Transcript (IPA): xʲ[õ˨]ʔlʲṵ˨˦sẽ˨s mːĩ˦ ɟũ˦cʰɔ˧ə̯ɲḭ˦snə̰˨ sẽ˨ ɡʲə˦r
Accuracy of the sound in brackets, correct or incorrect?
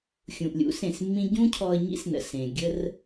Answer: incorrect: ũ˨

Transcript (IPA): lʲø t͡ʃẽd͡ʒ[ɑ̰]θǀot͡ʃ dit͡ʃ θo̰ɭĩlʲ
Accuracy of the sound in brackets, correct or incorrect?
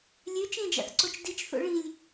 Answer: correct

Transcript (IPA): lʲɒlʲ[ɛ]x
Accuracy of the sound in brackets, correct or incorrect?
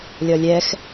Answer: correct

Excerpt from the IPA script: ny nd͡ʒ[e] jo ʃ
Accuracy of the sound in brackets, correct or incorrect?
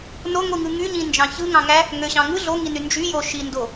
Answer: incorrect: y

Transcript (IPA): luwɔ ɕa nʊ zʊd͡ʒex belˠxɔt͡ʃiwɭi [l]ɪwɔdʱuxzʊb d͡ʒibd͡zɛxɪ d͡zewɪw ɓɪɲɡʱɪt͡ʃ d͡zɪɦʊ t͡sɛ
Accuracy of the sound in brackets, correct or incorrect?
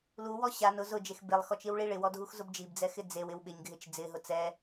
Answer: incorrect: ɭ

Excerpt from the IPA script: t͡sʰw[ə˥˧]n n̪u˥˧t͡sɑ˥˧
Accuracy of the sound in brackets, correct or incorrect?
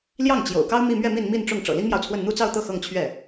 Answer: correct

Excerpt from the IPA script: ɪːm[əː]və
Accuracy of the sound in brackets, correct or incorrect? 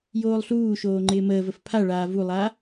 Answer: correct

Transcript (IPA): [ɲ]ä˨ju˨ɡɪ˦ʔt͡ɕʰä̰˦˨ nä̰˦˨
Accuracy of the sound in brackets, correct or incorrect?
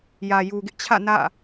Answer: incorrect: j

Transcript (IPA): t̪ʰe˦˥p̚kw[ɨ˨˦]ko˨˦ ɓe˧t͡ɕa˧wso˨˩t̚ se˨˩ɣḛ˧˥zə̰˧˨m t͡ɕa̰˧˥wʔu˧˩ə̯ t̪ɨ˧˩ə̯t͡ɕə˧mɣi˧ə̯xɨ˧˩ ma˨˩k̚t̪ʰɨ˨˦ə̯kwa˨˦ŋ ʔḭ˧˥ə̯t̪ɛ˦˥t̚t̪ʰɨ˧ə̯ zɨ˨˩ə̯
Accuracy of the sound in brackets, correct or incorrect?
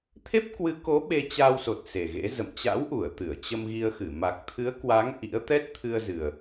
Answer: correct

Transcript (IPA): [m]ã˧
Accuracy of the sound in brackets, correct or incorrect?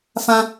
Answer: incorrect: f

